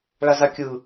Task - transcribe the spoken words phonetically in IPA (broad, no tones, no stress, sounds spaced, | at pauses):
ɭ a z a kʲ ɯ